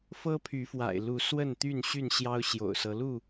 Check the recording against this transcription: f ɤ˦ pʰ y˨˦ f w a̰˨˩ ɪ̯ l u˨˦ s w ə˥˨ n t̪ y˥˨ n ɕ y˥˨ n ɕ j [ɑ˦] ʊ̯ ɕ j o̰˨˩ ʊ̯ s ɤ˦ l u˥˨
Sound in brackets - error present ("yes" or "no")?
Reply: no